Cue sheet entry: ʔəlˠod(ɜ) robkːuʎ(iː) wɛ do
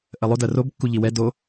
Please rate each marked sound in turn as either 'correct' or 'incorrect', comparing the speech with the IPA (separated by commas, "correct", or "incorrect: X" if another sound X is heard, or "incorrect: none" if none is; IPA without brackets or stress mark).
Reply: correct, incorrect: i